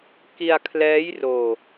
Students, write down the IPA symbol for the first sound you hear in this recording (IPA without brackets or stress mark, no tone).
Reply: k